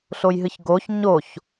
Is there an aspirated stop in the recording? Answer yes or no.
no